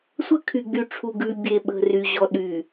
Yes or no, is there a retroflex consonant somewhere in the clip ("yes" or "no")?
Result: yes